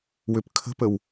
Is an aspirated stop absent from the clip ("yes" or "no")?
no